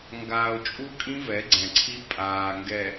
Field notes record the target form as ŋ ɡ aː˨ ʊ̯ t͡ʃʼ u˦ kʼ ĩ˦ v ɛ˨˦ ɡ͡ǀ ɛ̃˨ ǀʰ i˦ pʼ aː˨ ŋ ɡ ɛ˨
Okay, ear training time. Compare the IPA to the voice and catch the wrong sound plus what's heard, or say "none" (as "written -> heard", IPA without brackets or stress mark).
none